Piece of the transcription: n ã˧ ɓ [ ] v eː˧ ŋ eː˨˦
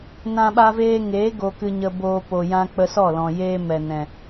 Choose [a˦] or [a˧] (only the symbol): a˧